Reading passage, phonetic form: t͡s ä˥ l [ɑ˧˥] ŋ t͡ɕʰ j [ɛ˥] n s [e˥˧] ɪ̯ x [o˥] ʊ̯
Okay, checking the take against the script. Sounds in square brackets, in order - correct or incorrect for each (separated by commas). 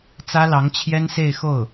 correct, correct, correct, incorrect